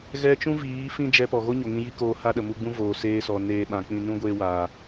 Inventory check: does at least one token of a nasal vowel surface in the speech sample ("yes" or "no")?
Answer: yes